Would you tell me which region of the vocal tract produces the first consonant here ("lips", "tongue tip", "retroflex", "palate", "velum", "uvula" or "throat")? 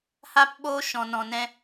throat